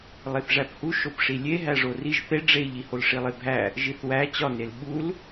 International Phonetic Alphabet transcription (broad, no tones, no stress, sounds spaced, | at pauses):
lˠ e θ ʐ æ p h u ʃ o p ʂ i lʲ e ɦ æ ʐ o r i ʒ θ e ɖ͡ʐ e ʎ i h o l ʂ i lˠ e bʱ æ | ʒ i θ w æ t͡ɕ ɒ n e l ɓ u l